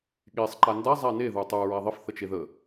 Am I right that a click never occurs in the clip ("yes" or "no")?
no